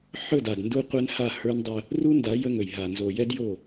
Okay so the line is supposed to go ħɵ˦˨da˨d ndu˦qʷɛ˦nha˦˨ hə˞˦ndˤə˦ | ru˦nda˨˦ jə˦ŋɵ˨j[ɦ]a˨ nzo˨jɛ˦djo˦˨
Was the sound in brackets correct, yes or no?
yes